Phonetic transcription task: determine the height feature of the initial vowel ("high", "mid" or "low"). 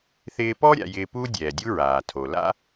high